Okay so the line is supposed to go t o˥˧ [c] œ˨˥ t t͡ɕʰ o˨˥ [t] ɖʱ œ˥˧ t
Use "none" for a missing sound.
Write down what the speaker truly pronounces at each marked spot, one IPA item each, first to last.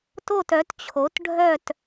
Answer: t, t

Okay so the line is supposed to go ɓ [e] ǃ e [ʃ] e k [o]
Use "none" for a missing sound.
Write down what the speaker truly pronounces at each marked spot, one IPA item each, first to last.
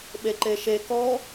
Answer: e, ʃ, ɔ

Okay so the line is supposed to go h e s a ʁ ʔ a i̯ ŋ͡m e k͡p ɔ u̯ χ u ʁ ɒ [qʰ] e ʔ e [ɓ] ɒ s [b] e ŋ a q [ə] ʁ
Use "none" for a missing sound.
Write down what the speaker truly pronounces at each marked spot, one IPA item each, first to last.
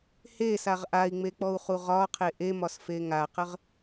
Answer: qʰ, m, f, ə

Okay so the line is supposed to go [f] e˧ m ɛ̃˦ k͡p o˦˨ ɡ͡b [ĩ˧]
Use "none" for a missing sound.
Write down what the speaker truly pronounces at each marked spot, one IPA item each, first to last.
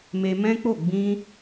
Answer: m, ĩ˧

